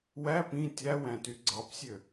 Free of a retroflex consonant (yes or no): yes